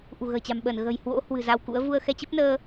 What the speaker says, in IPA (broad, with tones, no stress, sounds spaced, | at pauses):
ʔ ṳ˨˩ ɣ ə̤ː˨˩ t͡ɕ a̤˨˩ m ɓ əː˧˩ n ɣ ə̤˨˩ j h w o̰˧˥ h w ɨ̤˨˩ z a˧ w k ṵ˧˥ ə̯ v u˧ ə̯ x ɛ˧ t͡ɕ ə˦˥ p̚ n əː˧